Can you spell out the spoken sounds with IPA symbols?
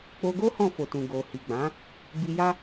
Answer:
k͡p o˧ ɡ o˦ h ɔ̃˦˨ f o˨ t ũ˨ ɡ o˨ h i˨ ɡ͡b ã˨˦ | b i˧ j a˦

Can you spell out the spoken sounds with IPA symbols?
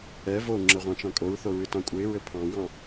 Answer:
ɛ v o ŋ͡ǁ ə ʁʷ ɑ̃ t͡ʃ ɑ̃ kʼ o ɹ θ o ɹ ɨ t ɑ̃ kʷʼ ɘ ɪ̯ ɹ ɘ pʰ ɑ̃ w ɑ̃

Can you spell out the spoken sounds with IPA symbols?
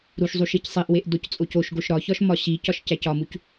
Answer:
ɾ u ʃ zˤ u ʃ i c sˤ i ʔ w e ʔ d o c t͡sʼ o c o ʃ ɡ o ʃ ɾ ɒ ç ɒ ʃ m ɒ ɕ i c ɒ ʃ c æ c ɒ m u c

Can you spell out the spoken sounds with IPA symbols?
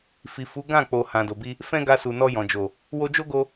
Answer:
f i˨ f u˨˦ ɡ ã˦˨ k͡p o˨ h ã˨ d o˨ b i˧ | f ɛ̃˦ ɡ a˧ s u˨ n ɔ˧ j ɔ̃˨ d͡ʒ o˨ | w o˧ d͡ʒ o˦ ɡ o˧

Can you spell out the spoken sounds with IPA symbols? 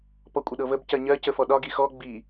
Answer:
p ɔ kʷʼ ə ɗ ɤ v ə b c ɜ ɲ ɜ c ə f ɔ ɗ ɒ ɡ i x ɔ ɡ͡b i

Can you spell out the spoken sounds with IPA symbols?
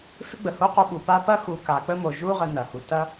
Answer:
f ɪ˥ ɡ͡b ə˩ h o˥ q o˦ ɓ u˩ p a˦ p ɐ˦ x u˨ k a˩ k͡p ə˦ m o˩ ʒ u˦ ʁ ə˨ n ɐ˩ h u˩ t ɐ˦

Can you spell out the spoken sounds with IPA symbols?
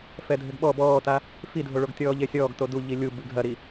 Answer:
f ɛ dʱ ɘ ɡ ɓ ɔ b ɔː t a | f i dʱ o ɭ o ɡ tʲ ɔː ʎ e sʲ ɔː ɡ t o d u ʎ i lʲ u b ɨ ɡʱ ɐ ɾ i

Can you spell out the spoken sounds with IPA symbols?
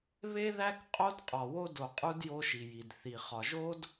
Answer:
β e˦ ð æ˦ k qʼ o˦ d qʼ ɒ˨ w o˦ d o˨ qʼ u˦ d j o˦ ʃ i˨ j i˨ d θ i˨ χ ɒ˨ ʒ o˦ d

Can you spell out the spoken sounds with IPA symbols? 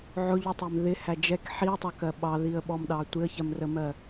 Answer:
ʕ ʊ ʎ u tˤ ɛ m ð ɪ h æ d͡ʒ ɛ k ħ i ə̯ tˤ ɑ k ɜ ɓ ɑ ð i ə̯ ɓ ɔ m ɗ ɑ tʷ ɪ ə̯ ç ɜ m r ə m ɜ

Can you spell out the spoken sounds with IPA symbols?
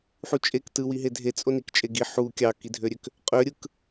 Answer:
ħ u t͡ʃʼ e k t ɯ w i ɦ e dʱ e t͡sʼ o n i k t͡ʃʼ e ɡ i ħ u kʲ ɑ k i dʱ ø ɾʲ ø k | qʼ ø ɾʲ ɯ k

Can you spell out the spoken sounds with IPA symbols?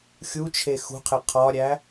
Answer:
xʲ u t͡ʃʰ e x ṳ qʰ e qʰ ɒ ɾʲ æ

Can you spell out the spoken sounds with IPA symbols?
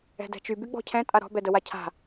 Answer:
ɛ̤ d ɛ̤ t͡ʃ y b y ɡ͡b ɔ̤ cʰ ɛ̃ tʼ a ɾ ɔ̤ b ɛ d ə w a cʰ a̤

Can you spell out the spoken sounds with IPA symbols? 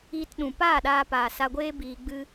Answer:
iː˧ t ɗ ũ˨ p aː˦˨ ɗ aː˧ p aː˨ s a˧ ɡʷ eː˦ b iː˧ ɡ͡b ɨ˦

